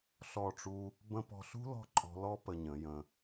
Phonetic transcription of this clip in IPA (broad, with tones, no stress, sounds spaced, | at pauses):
ɬ ɔ˦˨ ʈ͡ʂ u˦ | b ə̃˦ p ɔ̤˧ ɬ ṳ˦ l ɔ̤˦ ǃʼ ɔ̤˧ l ɔ˦ p ə˧ ɲ ə̃˨˦ j ə̃˧